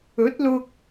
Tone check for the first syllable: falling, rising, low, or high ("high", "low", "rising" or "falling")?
rising